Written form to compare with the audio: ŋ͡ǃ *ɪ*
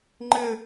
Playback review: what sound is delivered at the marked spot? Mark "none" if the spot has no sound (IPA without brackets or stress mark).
ɪ